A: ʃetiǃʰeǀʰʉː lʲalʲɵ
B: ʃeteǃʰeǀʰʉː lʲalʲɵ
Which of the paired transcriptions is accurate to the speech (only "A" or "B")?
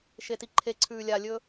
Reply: A